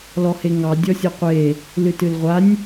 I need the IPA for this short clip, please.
l ɔ h e ŋ ɑ dʲ ɔ sʲ ɔ qʷ e | l ɨ t ɨ l ʁʷ a nʲ

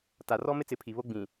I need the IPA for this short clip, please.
t a˨ r ɔ˦ m ɪ˦ t͡s ɪ˨˦ pʰ i˨ β o˦ ɡ͡b ĩ˨

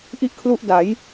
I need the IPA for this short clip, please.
ʔ i˥˩ ʔ kʰ l u˥˩ ʔ d a˩˦ j

